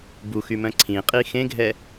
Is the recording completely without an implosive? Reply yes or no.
yes